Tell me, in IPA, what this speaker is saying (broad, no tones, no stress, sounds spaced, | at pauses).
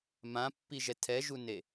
m ã pː i ʒ ɛ tʰ ɛ ʒ u n e